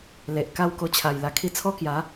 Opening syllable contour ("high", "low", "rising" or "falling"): low